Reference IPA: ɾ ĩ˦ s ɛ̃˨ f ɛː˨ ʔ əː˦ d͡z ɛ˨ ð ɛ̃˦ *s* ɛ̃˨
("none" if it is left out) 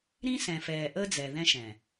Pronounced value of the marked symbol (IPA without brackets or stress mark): ʃ